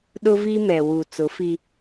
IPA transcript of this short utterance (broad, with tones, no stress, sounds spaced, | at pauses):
ɗ ʊ˦ v i˦ m ɛ˨ w u˨ t͡s ʊ˨˦ f i˦